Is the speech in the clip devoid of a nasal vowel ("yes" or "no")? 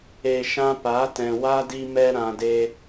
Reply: no